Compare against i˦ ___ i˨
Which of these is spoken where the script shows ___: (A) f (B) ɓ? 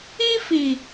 A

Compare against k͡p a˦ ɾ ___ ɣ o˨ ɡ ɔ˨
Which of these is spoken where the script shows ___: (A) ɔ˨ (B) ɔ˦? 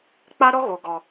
B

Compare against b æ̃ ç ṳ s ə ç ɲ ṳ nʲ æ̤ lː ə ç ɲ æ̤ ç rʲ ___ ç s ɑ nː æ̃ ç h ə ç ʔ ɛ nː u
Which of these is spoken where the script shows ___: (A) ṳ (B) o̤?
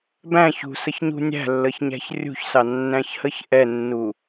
A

